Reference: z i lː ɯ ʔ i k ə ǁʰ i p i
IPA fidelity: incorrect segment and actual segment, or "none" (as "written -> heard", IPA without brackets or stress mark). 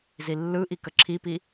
none